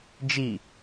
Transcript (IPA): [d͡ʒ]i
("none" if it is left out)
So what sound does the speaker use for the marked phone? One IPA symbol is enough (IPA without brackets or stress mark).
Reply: d͡ʒ